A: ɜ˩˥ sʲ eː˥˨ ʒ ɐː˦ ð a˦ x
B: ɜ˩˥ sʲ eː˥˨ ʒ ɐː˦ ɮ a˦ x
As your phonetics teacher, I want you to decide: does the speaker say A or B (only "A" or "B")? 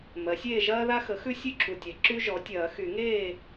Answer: A